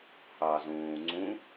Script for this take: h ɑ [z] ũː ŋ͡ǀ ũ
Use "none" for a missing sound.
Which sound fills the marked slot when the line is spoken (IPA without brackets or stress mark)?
z